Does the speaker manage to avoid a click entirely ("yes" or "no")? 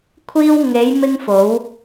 yes